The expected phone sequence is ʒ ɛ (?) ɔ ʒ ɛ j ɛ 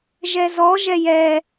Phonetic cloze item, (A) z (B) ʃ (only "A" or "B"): A